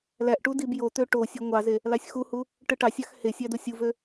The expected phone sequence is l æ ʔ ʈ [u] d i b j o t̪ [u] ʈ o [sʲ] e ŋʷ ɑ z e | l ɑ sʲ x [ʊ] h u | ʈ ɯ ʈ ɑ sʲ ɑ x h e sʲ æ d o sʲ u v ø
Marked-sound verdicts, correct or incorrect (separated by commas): correct, incorrect, correct, incorrect